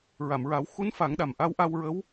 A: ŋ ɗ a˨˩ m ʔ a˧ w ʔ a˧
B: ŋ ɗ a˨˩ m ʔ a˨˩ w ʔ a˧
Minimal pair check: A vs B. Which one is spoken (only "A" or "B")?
A